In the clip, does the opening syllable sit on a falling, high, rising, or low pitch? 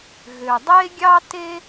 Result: low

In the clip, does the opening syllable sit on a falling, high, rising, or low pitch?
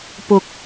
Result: low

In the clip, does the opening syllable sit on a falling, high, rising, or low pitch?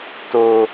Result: low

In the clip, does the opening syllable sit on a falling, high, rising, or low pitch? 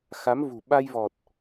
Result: rising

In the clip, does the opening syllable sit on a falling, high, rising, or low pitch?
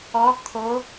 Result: rising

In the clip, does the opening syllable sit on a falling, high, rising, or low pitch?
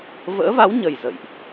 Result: rising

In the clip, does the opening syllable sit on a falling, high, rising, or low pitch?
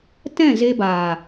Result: falling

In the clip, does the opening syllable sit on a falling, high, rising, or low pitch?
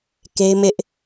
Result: high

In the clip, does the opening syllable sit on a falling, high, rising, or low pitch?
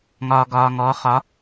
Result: low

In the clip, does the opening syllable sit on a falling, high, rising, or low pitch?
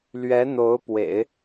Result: rising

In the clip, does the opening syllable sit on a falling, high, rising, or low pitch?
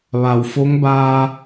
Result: low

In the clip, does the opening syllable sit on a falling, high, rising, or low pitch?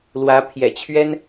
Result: rising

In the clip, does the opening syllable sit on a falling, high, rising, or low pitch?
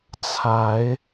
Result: rising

